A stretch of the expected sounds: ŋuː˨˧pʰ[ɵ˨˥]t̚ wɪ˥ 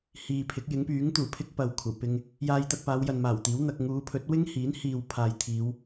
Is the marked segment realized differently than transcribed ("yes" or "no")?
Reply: no